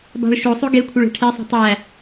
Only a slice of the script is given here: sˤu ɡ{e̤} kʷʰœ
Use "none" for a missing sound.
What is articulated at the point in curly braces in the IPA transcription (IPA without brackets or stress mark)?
e